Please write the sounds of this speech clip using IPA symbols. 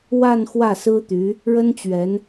wa˥˧n xwä˥˩sɹ̩˥t̪y˧˥ | ɻə˥nt͡ɕɥɛ˧˥n

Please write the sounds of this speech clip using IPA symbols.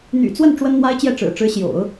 n̪y̰˨˩t͡swə˥˩n ʈ͡ʂwə˥nn̪wa˥ɪ̯t͡ɕjɛ˥˩ʈ͡ʂɻ̩˨˩ ʈ͡ʂɻ̩˧˥ɕjo̰˨˩˦ʊ̯

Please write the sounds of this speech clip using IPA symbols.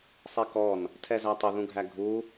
sˤɛkɔn | tʰɛzætˤə ðũɡʱæɡʱu

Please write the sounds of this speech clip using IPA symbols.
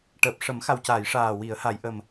ʈəː˨˩p̚ ʂə˨˩˦mxa˨˩w caː˨˩˨j ʂaː˨˩ wi˨˩˨ə̯ ha˨˩˨jʔə˨˩m

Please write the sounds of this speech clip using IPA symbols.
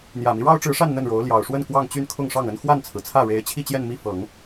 n̪jä˨˩mi˦ ɻɑ˥ʊ̯ʈ͡ʂɻ̩˧˥ʂa˥˧n n̪ə˥˩nɻo˧˥ʊ̯ ljɑ˨˩ʊ̯ʂwə˥˧n kwɑ˥˧ŋt͡ɕy˥˧n kʰʊ˥˧ŋʂɑ˥˩ŋə˥n xwa˥˩nt͡sʰɹ̩˩t͡sʰä˥˩ ɻe˧˥ɪ̯ t͡ɕʰi˥˧t͡ɕjɛ˥˧n mi˥˩ fɤ˨˩˦ŋ

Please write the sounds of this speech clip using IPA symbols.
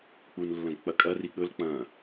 k͡punlːɐ̃ɡ k͡pɐkʼɐ riɠɵl k͡pɐ̃

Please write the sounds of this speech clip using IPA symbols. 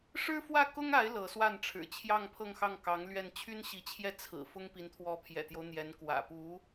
ʂɻ̩˥fwä˥˩kʊ˥ŋa˧˥ɪ̯ lɤ˧˥swa˥˩n ʈ͡ʂʰɻ̩˨˩t͡ɕʰjɑ˥˧ŋ pʰɤ˥˧ŋxɑ˥˩ŋ kɑ˧˥ŋ lɥɛ˥˩n t͡ɕʰy˥nɕi˧˥t͡ɕʰjɛ˥˩ t͡sʰɹ̩˨˩fʊ˥ŋ pi˧˥nt̪ʰwɔ˧˥pʰjɛ̰˨˩t̪jo˦ʊ̯ n̪jɛ˧˥nkwä̰˨˩ pu˧˥

